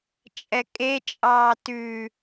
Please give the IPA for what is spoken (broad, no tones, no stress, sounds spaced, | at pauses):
t͡ʃʼ ɛ kʼ e t͡ʃʼ ɑː t ʉ